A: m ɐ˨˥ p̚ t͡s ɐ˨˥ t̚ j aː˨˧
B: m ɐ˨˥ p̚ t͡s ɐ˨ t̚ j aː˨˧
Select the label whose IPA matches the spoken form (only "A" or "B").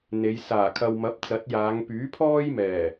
A